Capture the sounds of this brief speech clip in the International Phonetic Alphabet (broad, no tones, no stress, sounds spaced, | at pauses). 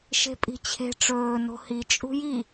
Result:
ʃ e̤ pʼ i̤ t͡ɕʰ e̤ ʈ͡ʂ ɵː n o̤ h i t͡ʃʼ ṳ j i